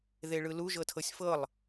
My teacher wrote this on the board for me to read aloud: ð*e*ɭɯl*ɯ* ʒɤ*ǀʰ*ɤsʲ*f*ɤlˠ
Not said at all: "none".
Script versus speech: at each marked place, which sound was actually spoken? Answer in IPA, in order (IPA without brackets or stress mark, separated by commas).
e, u, tʰ, f